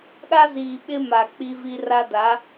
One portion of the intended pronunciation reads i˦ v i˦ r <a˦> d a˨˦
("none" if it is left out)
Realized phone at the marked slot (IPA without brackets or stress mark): a˦